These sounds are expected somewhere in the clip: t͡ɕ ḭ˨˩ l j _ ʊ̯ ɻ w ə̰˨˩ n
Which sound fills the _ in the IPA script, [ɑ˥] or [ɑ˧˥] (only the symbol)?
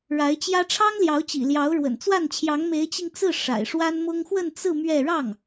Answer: ɑ˧˥